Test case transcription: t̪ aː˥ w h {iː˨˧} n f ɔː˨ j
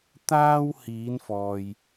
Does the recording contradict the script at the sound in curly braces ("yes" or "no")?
no